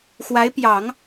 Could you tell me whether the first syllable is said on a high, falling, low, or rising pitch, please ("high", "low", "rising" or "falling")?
rising